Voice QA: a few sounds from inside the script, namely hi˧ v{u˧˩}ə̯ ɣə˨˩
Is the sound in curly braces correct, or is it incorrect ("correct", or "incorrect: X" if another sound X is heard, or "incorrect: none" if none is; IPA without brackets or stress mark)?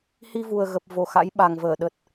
incorrect: u˨˩